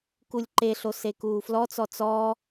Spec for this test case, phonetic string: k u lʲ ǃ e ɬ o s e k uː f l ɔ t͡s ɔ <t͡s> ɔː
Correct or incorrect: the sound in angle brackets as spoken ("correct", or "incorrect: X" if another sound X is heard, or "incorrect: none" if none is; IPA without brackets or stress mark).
correct